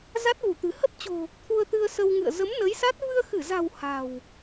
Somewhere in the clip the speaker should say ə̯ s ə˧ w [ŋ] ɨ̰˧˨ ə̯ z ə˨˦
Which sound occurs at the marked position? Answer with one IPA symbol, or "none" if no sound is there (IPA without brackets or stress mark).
ŋ